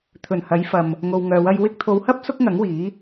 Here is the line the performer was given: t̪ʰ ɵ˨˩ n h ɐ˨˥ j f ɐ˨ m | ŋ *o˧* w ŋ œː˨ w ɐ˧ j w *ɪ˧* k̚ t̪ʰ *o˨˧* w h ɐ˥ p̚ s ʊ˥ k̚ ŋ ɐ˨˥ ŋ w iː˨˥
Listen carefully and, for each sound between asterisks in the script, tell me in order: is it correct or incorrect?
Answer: incorrect: o˨, correct, correct

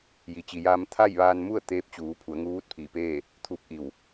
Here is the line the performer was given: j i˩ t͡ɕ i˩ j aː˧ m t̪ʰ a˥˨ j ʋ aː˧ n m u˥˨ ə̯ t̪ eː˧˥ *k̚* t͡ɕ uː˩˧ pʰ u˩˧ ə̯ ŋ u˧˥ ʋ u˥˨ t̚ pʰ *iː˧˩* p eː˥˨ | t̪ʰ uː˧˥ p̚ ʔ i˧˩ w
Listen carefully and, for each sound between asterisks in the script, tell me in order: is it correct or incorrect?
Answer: incorrect: p̚, correct

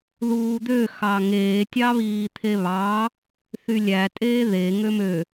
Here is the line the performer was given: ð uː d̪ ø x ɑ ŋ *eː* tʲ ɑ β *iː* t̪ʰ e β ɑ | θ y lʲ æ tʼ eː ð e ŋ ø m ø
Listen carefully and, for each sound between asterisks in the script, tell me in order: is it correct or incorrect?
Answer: correct, correct

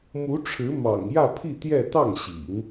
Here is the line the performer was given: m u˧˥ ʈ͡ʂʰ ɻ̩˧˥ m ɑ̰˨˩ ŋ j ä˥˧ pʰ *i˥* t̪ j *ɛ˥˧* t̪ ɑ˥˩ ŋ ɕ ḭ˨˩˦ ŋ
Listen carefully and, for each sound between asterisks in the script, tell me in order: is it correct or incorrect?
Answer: incorrect: i˥˧, correct

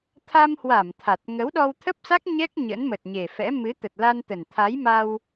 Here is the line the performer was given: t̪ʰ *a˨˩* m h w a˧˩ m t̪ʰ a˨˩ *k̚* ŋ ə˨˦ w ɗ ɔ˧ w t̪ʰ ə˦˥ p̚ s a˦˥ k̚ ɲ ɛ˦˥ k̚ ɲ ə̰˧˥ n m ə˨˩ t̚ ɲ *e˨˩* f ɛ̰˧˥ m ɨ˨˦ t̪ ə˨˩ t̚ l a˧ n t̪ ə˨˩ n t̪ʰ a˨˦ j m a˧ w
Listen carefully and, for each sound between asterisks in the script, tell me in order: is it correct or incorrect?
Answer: incorrect: a˧, incorrect: t̚, correct

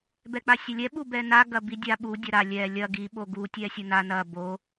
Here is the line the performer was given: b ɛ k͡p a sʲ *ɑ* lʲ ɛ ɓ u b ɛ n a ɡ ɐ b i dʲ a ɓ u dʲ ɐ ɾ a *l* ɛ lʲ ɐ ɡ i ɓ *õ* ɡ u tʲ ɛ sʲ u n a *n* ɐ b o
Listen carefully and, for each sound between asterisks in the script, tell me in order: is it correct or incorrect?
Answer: incorrect: ɐ, incorrect: lʲ, incorrect: o, correct

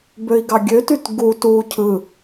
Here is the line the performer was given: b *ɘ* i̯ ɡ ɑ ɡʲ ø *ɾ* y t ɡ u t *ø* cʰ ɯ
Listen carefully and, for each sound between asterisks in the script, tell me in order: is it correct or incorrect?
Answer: incorrect: ø, incorrect: t, incorrect: u

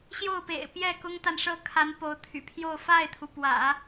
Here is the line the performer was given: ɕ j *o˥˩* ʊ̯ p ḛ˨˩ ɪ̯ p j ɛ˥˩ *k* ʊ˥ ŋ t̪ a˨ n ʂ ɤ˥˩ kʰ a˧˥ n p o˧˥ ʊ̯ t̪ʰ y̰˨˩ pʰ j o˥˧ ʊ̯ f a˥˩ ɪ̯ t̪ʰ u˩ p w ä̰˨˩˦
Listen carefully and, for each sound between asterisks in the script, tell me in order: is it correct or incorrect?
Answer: correct, correct

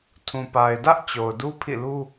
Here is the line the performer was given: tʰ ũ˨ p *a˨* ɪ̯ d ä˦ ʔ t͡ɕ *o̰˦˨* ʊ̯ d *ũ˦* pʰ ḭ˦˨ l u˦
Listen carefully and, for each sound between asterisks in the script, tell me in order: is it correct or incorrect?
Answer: correct, incorrect: o˨, incorrect: u˦

